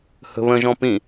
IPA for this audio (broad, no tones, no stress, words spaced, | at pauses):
hə̤βə̃ ʒɔ̃pĩ